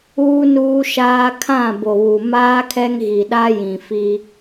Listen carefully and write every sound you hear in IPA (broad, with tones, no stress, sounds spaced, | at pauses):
uː˦ n uː˦ ʃ aː˦ kʰ ã˦˨ b o˨ β u˨ m aː˦ kʰ ɛ˦ ŋ ɣ i˨ ɗ a˦ j ĩ˨ f i˦